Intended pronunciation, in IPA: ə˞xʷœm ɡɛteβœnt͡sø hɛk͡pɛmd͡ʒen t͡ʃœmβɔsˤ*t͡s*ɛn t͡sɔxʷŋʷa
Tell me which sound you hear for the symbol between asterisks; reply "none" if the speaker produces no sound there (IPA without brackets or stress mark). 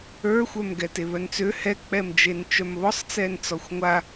t͡s